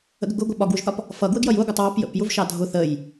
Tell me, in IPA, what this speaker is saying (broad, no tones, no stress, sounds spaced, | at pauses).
ə̰ ɡ ə ɡ ʊ ɡʷ ɜ ɓ ɒ ɡ w ʊ ʒ θ ɒ p | f ʌ ɡ w ə ɡ j ʌ j ʊ ɡʷ ʌ tˤ w ɑ p j ə̰ p j ʊ v ʃ ɑ dʱ ʊ θ ə j